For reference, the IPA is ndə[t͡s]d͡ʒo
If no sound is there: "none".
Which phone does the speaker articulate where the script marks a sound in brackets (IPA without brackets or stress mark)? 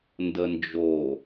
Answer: n